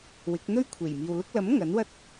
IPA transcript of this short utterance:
wɪ˨˥k̚ n̪ɵ˥ɥkʷʰe˨˩jmiː˨wlʊ˥k̚ lɐ˨˥m ŋɐ˨˥nwɐ˥t̚

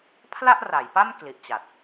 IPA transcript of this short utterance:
pʰla˥˩ʔra˩˦jpa˥˩m kli˨˩ʔt͡ɕa˨˩t̚

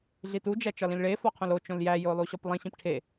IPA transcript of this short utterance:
ɮitu d͡ʒæt͡ʃɒlĩlɭe fɒqʰõlo t͡ʃõljæ jolˠuɕɒplˠĩ ɕĩpʈʰe

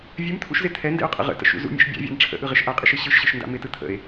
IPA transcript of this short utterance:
vʲɨmt̪ʰṵʃzɪ t̪ʰɛndɛ̰o̯qʼə̰ ʁə̰tə̰ʃṵ zṵmʲɛ̰ʃ bʲa̰vʲa̰n ʈ͡ʂʰə̰ʔɯʁɪʃ ʔaqʼɪʃɯ ɕɯʃɕɯʃnda̰ mɪtɯ t̪ʰə̰e̯

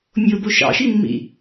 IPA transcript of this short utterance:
mʲobo ʃɑ̰ʃimːḭ

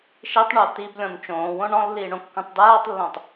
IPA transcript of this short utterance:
ʃitˤɳo t̪iblʲɔ̃n t͡ʃõːwõ ɳɔ̃lːiː ɳõkːũtˤdaːtˤlːõtˤ

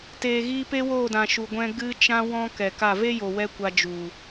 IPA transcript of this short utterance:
teː˨ ɣiː˧pe˦woː˦˨dã˨ ʃu˨ɡʷɛ̃˧ ɡɨ˧t͡ʃã˧ wɔ̃˦kɛ˨ ka˦˨ ve˦jo˨wɛ˧ kʷa˧d͡ʒu˨

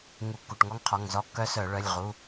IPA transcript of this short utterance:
ŋu˧˩˧kːu˩˧˩ʈŋɔ˦˥ŋqʰɔ˩˧˩ŋ zɔ˦˥kːœ˦˥ sœ˧˩˧ɭœ˩˧˩lʲ ʁu˩˧˩

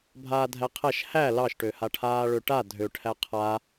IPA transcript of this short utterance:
bʱaːdʱæqʰæʃ hæ lɑʃʈø haʈʰaːɭøʈa dʱøʈʰæ qʰa

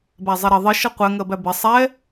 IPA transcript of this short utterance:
bæzˤɛɾʌ ðˤɪ ʃʌqʷɛ ŋɜbæbɪ sˤɛ

